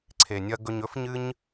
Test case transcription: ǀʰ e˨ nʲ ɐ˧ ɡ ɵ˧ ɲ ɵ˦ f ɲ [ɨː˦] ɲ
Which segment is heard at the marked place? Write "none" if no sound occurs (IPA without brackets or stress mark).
ɨ˦